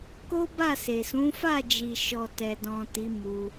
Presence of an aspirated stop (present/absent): absent